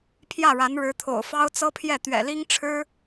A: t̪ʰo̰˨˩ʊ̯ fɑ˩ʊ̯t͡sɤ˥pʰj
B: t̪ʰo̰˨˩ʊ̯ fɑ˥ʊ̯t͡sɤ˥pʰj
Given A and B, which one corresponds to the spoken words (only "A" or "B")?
B